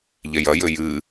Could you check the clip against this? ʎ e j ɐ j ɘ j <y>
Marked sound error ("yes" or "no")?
yes